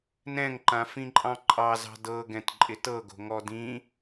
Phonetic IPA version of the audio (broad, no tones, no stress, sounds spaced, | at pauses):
n ɛ̃ ŋ ǃ ã f ĩ ǃʼ ɑ̃ ǃʼ ɑ z ɑ̤ d ɤ ɡ ɛ̃ t ǃʼ ɪ t ɤ ɡ o̤ ŋ ɔ d ĩ